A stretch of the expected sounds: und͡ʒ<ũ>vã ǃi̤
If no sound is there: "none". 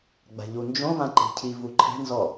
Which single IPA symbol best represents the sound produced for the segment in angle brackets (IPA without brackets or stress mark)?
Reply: õ